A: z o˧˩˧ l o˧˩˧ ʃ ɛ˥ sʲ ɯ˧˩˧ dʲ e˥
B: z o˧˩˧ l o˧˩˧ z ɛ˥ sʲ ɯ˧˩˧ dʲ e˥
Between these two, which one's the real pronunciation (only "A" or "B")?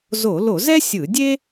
B